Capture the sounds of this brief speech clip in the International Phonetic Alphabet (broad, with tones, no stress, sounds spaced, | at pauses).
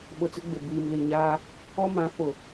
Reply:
ɓ ʊ˨ t͡s ɪ˦ ɡ͡b ɪ˨ b iː˨ m l i˨ ɲ aː˦ | ɔ˦ m ã˨˦ f ʊ˨